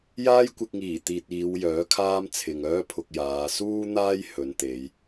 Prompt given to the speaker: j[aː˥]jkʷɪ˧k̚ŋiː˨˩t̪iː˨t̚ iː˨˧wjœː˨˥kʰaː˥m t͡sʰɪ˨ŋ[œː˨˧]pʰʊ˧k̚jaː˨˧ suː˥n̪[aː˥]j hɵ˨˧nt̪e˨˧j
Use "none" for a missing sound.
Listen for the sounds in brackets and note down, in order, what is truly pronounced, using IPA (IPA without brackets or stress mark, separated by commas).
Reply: aː˥, œː˥, aː˥